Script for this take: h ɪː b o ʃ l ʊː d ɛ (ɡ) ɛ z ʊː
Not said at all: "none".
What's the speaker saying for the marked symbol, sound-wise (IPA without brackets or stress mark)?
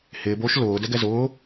ɡ